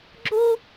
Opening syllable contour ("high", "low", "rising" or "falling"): high